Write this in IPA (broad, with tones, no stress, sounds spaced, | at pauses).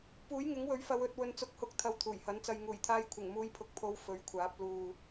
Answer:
p uː˨˥ j ŋ ɪ˨˥ ŋ w ɵ˨˥ ɥ f ɐ˨˧ w ɵ˧ t̚ w ɵ˨ n t͡s ʊ˨˥ k̚ h ʊ˨˥ k̚ t̪ʰ ɐ˧ w t̪ʰ uː˨˩ j h ɐ˨˥ n t͡s ɐ˧ j ŋ uː˨˩ j t̪ʰ aː˧ j kʷʰ ɪ˨˩ ŋ m uː˨˧ j pʰ ʊ˨ k̚ pʰ o˨˧ w f ɵ˨˥ ɥ kʷʰ aː˨˥ p̚ l uː˨